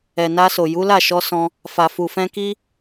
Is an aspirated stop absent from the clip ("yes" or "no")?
yes